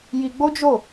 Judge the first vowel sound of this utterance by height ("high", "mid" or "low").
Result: high